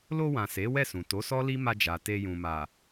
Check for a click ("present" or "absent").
absent